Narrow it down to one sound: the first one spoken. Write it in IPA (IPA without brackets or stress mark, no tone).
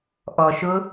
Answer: ʔ